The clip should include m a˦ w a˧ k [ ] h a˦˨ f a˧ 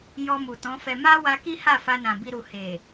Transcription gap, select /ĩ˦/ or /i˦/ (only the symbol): i˦